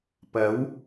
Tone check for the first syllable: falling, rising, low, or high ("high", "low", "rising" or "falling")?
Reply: rising